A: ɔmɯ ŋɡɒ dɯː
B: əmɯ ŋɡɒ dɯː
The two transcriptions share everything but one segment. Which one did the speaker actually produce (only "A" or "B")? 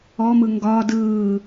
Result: A